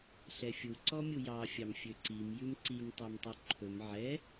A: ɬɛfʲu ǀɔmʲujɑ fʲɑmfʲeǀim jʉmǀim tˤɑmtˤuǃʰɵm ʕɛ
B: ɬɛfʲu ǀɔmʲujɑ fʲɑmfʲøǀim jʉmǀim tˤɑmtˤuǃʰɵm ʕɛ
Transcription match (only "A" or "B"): B